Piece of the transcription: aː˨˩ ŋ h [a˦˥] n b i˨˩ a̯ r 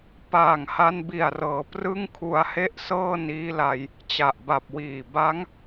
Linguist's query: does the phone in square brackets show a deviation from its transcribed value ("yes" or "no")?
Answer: yes